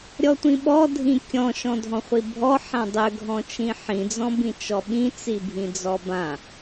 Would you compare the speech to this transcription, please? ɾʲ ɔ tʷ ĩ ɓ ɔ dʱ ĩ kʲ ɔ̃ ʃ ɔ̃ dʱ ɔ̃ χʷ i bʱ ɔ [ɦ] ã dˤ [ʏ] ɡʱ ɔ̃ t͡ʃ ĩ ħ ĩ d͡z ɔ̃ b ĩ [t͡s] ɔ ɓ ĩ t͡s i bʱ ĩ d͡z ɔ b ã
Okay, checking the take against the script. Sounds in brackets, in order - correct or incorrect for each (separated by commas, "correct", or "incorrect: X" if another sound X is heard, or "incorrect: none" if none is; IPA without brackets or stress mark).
incorrect: ħ, correct, incorrect: t͡ʃ